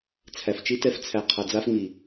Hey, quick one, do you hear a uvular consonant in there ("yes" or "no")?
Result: yes